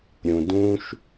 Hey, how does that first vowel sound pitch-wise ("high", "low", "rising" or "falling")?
low